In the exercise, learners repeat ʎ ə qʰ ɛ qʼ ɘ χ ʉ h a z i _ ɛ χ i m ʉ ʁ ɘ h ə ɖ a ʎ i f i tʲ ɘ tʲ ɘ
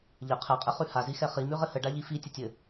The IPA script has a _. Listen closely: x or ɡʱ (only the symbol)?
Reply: x